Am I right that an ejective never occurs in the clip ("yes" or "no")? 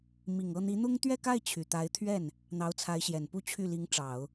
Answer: yes